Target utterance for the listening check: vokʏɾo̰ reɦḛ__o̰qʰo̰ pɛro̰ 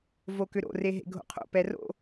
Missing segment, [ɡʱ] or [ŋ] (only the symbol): ɡʱ